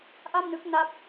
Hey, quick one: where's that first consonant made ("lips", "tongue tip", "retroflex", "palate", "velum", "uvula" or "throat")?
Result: throat